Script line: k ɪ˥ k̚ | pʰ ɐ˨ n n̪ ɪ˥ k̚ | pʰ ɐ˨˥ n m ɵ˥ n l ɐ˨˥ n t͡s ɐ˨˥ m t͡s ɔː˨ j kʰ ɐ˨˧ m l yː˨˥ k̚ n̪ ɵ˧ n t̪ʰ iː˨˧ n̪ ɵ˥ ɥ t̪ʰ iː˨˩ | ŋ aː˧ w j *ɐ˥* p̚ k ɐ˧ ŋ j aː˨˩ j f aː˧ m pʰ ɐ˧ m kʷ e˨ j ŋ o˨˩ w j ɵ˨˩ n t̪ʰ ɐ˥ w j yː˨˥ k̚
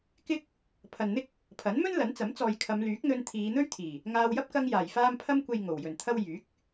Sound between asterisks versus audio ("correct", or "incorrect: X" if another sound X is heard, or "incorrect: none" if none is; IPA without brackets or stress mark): correct